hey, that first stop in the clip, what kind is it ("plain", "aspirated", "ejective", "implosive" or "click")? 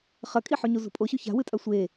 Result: ejective